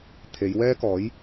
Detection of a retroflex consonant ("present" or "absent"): absent